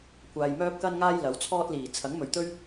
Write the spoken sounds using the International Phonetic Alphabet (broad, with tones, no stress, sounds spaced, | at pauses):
kʷ aː˨ j m œː˥ p̚ k ɐ˥ n ŋ aː˥ j l ɐ˨˥ w t͡sʰ ɔː˥ t̚ l iː˨˩ t͡sʰ ɐ˨˥ ŋ m ɵ˨˩ ɥ t̪ ɵ˥ ɥ